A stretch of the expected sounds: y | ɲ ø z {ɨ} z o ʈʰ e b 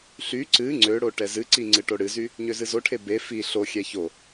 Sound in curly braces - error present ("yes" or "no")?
no